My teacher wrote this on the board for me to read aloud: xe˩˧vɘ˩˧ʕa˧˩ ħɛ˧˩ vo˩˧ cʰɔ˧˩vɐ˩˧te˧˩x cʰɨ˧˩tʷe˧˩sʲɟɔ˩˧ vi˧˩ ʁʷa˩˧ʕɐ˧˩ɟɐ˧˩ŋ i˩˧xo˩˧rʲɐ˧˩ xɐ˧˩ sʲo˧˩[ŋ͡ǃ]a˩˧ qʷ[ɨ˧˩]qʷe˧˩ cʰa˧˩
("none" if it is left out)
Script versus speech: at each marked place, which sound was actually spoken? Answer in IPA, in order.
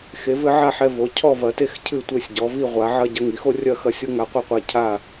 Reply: ŋ, ɨ˧˩

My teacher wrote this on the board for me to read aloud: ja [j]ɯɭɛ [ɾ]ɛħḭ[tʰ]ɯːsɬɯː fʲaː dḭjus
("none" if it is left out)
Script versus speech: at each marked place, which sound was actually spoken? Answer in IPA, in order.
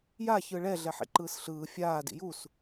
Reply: ç, ɮ, ǃ

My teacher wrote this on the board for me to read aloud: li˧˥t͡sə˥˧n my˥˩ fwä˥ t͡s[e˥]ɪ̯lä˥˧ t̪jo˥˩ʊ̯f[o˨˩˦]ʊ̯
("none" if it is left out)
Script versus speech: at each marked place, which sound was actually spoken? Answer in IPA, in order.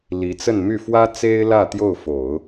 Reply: e˥, o˨˩˦

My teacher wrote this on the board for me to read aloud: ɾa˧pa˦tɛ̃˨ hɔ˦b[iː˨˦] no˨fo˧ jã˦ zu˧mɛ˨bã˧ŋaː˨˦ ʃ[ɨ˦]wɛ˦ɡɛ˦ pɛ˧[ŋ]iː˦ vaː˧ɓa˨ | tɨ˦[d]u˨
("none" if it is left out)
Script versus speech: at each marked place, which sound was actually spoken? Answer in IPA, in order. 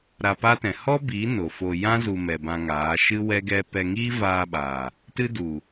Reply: iː˨˦, ɨ˦, ŋ, d

